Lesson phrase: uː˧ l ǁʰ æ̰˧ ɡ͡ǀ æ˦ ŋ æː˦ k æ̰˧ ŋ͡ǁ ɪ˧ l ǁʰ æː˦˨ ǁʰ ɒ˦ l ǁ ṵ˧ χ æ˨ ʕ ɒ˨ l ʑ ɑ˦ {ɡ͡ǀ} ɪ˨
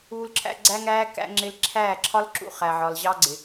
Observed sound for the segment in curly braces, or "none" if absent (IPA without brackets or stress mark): ɡ͡ǀ